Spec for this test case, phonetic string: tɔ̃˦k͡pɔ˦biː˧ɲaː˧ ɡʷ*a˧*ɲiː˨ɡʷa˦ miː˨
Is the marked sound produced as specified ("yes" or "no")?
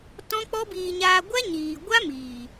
no